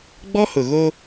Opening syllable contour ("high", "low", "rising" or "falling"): high